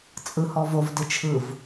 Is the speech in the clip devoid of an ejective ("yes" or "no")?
no